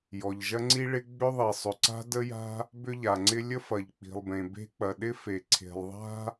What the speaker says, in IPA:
jɔ˩ʎʒɐ˥ŋ͡ǀi˥ɭɪ˥ ɡ͡bʏ˥ðˤi˩sˤʏ˩ ǀa̤˥də˥ja̤˥ | bʏ˥ʎa˩ŋ͡ǀɪ˥ lʲə˥fɐ˩ʎ k͡pi̤˩lˠbẽ˩be̤˥k͡pɐ˩ ɗɪ˥fe˩ ǀʰe̤˩lˠðˤa̤˥

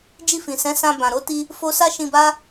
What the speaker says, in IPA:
d͡ʒi˧fĩ˨ sɛ̃˨˦sã˧ bã˨ɾo˨˦ti˧ | fo˧sa˦ʃĩ˧ba˦

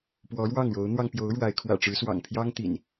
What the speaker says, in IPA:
pwɔ˨˦ɻwɑ˥˨ŋɻo˨˦ʊ̯n̪wɑ˧ŋ pjo˨˦ʊ̯ ɻwa˨˦ɪ̯kʰwä̰˨˩ʈ͡ʂɻ̩˨˦swɑ̰˨˩ŋ pʰjɑ˦ŋt̪ḭ˨˩n

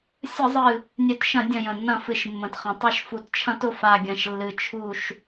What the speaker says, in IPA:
sʲə˧˩˧zˤɨ˨˩ | nʲœ˧˩˧tʃɐ̃˧˩˧ dʲɐ̃˨˩jə̃˨˩nːɐ̃˧˩˧ fɨ˨˩ʃmːə̃˨˩tχɐ̃˨˩ tˤœ˧˩˧ʃfu˨˩tt͡ʃʰɐ̃˧˩˧t ʊ˨˩fa˨˩ɡʲɐ̃˨˩ʃ lːɨ˨˩ t͡ʃʰu˨˩ʃ

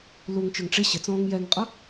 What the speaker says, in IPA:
luŋt͡ʃə˞ŋ ʈ͡ʂɪ ɕɪt͡sɔ̃ːŋ jɛŋqʼʌ

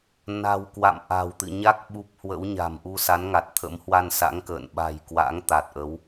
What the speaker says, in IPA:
na̤˨˩wkwa̰˧˨m ʔa̤˨˩wt̪ɨ̰˧˨ ɲa˦˥k̚ ɓu˦˥p̚ hwə̰˧˥w ɲa̤˨˩mʔu˧sa˨˦nŋa˨˩t̚ t̪ʰə̰˧˥mhwa˧nsa̰˧˥ŋkə̰ː˧˨n ɓa̤˨˩jkwa̰˧˥ŋ t̪a˨˩t̚ʔə˨˦w

